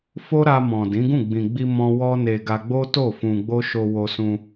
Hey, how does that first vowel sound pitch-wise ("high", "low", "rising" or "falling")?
high